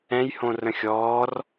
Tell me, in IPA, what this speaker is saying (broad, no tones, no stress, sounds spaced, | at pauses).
ɛ̃ j h õ r ə̃ xʲ ɔː r